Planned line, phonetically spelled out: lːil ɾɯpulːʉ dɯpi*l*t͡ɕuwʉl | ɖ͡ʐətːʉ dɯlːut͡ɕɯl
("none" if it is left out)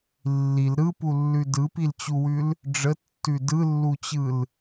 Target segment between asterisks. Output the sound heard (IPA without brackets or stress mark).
l